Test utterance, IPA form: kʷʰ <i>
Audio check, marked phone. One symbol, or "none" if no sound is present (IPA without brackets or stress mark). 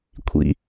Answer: ḭ